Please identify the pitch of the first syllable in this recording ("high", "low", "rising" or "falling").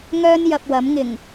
high